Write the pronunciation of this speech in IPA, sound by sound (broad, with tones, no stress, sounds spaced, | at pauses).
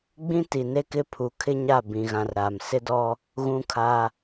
ɡ͡b ĩ˦ t i˨ n e˦ k ɪ˦ pʰ u˨ kʰ ɪ˦ ɲ a˦˨ b ĩ˨˦ ɣ ã˨˦ r ɾ aː˨ m s ɪ˦ d ɔ˦ | ɣ ũ˦ kʰ a˦